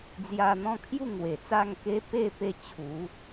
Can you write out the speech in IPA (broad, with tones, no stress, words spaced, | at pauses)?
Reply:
d͡zja˧n̪ɔ̃˥˧kʰju˥˧ ŋwe˨˩t͡sa˥˧ŋke˦ pe˥˧ pe˧ t͡ɕʰu˨˦